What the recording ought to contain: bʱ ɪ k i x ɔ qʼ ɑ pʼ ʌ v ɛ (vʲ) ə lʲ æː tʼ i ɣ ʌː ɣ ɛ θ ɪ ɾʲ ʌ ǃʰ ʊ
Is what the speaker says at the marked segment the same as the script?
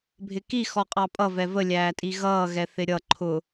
no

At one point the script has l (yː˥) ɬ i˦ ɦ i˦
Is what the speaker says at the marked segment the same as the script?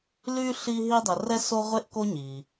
no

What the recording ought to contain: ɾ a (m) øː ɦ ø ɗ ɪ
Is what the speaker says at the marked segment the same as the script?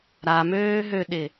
yes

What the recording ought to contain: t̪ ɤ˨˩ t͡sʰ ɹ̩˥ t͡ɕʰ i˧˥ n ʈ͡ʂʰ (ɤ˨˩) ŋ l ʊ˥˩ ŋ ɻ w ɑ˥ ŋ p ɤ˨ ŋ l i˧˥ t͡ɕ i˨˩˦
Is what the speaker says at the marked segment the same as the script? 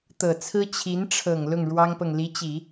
yes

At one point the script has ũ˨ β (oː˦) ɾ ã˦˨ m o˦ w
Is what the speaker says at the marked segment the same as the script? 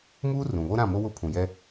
no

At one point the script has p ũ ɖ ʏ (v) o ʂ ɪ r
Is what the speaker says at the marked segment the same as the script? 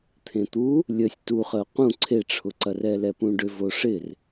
yes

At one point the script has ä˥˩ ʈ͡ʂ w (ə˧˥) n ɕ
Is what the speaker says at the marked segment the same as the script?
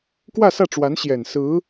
no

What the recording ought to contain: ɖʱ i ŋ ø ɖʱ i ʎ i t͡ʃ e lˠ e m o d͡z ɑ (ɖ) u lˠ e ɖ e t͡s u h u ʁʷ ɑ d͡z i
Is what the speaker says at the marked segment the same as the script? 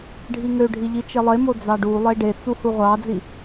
yes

